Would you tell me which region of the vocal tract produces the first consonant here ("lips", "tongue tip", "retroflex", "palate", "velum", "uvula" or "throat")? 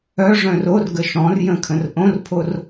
retroflex